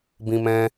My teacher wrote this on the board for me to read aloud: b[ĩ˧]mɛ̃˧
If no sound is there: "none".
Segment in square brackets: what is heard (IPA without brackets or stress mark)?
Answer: ĩ˧